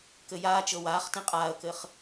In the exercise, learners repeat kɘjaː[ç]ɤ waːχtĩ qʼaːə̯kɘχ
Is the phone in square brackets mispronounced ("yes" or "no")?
yes